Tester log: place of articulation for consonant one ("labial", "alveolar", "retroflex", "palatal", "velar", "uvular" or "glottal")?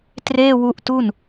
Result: alveolar